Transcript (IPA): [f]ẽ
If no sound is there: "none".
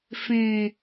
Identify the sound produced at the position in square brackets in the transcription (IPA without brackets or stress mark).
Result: f